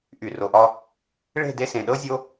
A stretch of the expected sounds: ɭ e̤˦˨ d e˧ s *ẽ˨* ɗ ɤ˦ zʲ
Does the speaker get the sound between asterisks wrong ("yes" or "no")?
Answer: no